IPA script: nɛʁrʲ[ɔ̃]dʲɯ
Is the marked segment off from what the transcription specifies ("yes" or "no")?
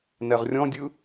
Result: no